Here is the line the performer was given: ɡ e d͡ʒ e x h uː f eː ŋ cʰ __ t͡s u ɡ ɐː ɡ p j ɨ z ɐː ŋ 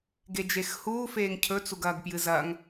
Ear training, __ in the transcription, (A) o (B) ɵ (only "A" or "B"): B